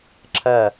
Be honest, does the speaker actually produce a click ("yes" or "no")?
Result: yes